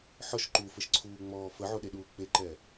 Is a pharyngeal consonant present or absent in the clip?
present